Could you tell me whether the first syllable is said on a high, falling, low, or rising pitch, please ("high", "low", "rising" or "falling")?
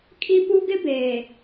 high